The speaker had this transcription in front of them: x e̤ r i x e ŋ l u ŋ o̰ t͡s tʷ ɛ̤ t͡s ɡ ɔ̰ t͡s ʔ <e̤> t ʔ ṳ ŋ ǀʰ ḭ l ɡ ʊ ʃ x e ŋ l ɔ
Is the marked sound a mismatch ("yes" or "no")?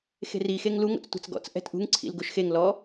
yes